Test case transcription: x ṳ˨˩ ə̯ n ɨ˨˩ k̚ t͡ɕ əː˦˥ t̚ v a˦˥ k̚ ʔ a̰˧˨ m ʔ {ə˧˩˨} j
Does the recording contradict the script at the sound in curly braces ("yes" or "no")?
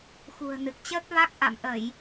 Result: no